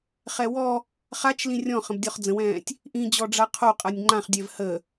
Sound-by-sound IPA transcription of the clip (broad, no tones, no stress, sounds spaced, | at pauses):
χ ɛ w ɔ | χ a t͡ʃ l ĩ rʲ ɔ̃ χ ə̃ b dʲ ɔ χ d͡z ə̃ w ɛ̃ː tʲ | ʔ ĩ d͡ʑ ɔ ɖ͡ʐ a qʰ o qʼ a nʲ ŋ͡ǃ ã χ dʲ ɛ v h ə